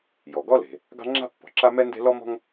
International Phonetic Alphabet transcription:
j ɔ˩ ɡ ɔ˥ l e̤˩ | ɡ ɑ̤˥ ŋ͡ǁ a̤˥ pː ɔ̤˩ ǁ a˥ m ɛ˥ n d e̤˥ l ɔ˥ m ɔ̤˥ ŋ

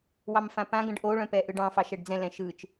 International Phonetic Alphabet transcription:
w ɑ m f ã p ã ɡ ə̃ ɖ ʔ o ɭ œ̃ p ɛ ʔ ɯ ɖ ɑ̃ f ɑ ʃ ɛ ɖ d͡z ɛ̃ l ɛ̃ ʃ ɯ t͡ʃ

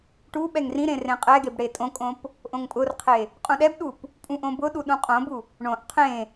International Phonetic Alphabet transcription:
ʈ u ɓ ɛ ŋ r ĩ ɾ ẽ r ẽ qʼ ɛ ɡ e b ɽ e tʼ õ kʼ õ p | ʔ õ ŋ pʼ ʊ r qʰ e | qʼ ũ ɗ ɛ b ɗ u p | pʼ ũ ʔ õ b ʊ ɗ u ɗ ũ qʼ õ b u | ɳ õ ʔ qʰ ẽ

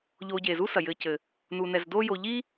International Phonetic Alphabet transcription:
ʎ oː˨ ɟ e˩ z u˦ s ɐ˩ j ɘː˨ c ɘ˩ | n uː˩ n ɛ˩ z d oː˦ j o˨ ʎ i˥

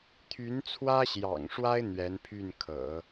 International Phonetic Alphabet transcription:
t̪ʰ y˧˥ n t͡sʰ w ä˥ ɕ j ɑ̰˨˩ ŋ ʂ w a˥ ɪ̯ n̪ ɥ ɛ˧˥ n pʰ y˥˩ n kʰ ɤ̰˨˩˦

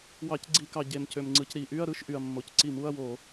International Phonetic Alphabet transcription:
w ɑ˧˩˧ c ɡ͡ǀ i˧˩˧ k ɑ˩ ɟ e˩ m c ø˩ m ŋ͡ǀ ɯ˩ c ɾ i˧˩˧ ʔ y˧˥˧ ɐ̯ ɾ ɯ˧˥˧ ʃ ʔ y˩ ɐ̯ mː o˩ c ǀ i˧˩˧ m u˧˥˧ ɐ̯ w o˧˩˧

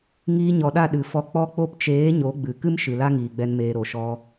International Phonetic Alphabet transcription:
ŋ iː˧ ɲ ɔ˨ ɗ a˦˨ ɗ ɨ˨ f ɔ˧ k͡p ɔ˧ k͡p o˧ p t͡ʃ eː˨˦ ɲ o˨˦ ɡ͡b ɨ˨ k ɨ˦ m ʃ ɨ˨ l a˦ ŋ iː˨ ɡ͡b ɛ˧ n m eː˨ ɾ o˨ ʃ ɔ˧

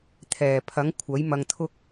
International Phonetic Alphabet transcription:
t̪ʰ ɛː˨˩ pʰ ɐ˨˥ ŋ kʷʰ ɐ˨˥ j m ɐ˧ ŋ t̪ʰ ʊ˥ k̚

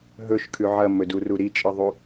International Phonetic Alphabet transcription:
ɦ ɵ ʃ kʰ ʉ ʕ ɐ m ɵ d u r u ɾ i t͡ʃʼ ɨ ðˤ u

